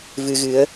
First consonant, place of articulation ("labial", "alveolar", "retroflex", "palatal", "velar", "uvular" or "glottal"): labial